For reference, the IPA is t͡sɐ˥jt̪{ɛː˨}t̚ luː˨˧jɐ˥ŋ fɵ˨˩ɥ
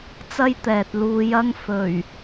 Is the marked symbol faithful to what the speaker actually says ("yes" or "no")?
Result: yes